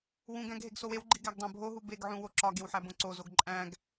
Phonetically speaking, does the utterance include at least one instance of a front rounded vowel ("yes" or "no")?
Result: no